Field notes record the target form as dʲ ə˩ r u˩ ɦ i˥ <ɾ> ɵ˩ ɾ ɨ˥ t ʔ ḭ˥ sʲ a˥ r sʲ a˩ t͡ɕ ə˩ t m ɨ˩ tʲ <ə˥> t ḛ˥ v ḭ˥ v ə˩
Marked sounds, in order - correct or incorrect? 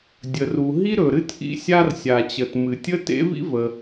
correct, correct

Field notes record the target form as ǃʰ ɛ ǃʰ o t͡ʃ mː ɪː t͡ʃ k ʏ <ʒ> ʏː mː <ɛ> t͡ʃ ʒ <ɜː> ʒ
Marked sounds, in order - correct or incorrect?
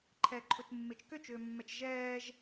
incorrect, correct, incorrect

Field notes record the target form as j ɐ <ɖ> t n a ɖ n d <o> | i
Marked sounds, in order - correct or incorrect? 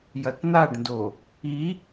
incorrect, correct

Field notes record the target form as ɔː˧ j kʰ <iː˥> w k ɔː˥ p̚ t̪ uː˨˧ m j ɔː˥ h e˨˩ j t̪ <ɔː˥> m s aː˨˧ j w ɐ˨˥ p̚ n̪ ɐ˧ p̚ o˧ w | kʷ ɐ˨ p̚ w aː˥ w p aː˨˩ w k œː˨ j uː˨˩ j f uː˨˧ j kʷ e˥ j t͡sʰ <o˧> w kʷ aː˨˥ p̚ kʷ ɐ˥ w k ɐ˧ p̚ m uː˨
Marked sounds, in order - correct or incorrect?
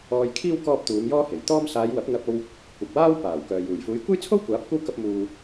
correct, correct, incorrect

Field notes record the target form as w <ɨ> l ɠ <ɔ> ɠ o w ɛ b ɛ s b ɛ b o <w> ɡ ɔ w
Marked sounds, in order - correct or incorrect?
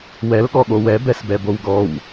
incorrect, correct, correct

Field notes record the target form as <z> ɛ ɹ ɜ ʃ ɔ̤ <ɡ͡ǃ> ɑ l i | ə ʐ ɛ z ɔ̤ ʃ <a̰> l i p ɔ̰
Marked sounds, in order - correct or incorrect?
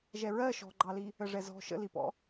incorrect, correct, incorrect

